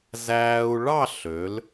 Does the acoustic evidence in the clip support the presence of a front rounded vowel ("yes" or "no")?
yes